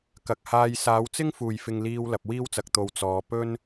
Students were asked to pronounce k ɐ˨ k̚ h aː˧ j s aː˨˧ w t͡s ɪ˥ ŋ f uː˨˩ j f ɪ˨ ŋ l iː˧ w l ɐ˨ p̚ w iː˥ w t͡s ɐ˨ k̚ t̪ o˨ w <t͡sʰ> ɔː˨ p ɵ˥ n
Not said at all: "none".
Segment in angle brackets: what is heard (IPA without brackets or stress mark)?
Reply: t͡s